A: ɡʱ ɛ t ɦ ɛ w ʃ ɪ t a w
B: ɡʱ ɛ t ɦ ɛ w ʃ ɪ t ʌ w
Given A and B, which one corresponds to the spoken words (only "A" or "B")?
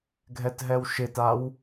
A